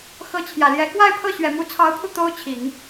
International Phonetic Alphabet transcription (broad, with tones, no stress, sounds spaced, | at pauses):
x ɤ˧˥ t͡ɕʰ j ä˨˩ l j ɛ˧˥ k w a˥˧ ɪ̯ pʰ ɤ˥˩ ɕ ɥ ɛ˨˩ m u˧˥ t͡sʰ ɑ˧˥ ʊ̯ pʰ u˧ t̪ o˥ ʊ̯ t͡ɕʰ i˨˩˦ ŋ